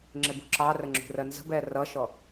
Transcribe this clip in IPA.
ŋ͡ǁɪbṳǁɑrə ŋ͡ǁṳrɜnzə̤bɛ rʌʃɔ

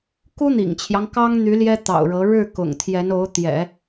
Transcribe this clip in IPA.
ku˥n̪ḭ˨˩ŋt͡ɕʰjɑ˦ŋ kɑ˥ŋn̪y˧˥ ljɛ˥t̪ɑ̰˨˩ʊ̯ɻɤ˧˥ ɻɻ̩˥˩ kʊ̰˨˩ŋt̪ʰjɛ˧˥no˧˥ʊ̯ t̪jɛ̰˨˩˦

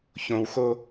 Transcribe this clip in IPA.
çõwxo

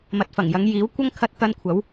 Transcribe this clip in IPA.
mɐ˨t̚fɐ˨˩ŋjɐ˨˧ŋ jiː˨˥wkʷɐ˥ŋ kʰɐ˧t̚t̪ɐ˧nkʷʰɐ˨˥w

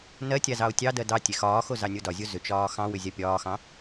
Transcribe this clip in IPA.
nɜtʲa zɑo̯tʲɑdɜ dɑ tʲexɒːxo zɑnʲodɒzʲo zʏt͡ʃɒː xɑ̃wʏ zʲapʲɒːxɑ̃

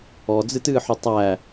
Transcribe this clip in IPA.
ɔd͡zɨtɨːħʊ tˤæ

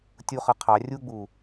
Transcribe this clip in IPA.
tʲuχʌ qʰɑ rʲuɡ͡bu

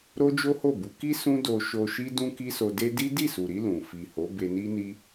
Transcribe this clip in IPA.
ɾo˦d͡ʒo˦ho˦˨bu˨˦ ki˦ sũ˦do˧ ʃo˧ʃi˦ dũ˦ki˦so˧ de˦ di˦ di˦˨su˨ɾi˧ lũ˨ fi˨ho˨˦ be˧ni˦ni˦

